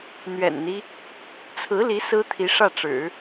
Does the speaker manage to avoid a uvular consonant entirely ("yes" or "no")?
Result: yes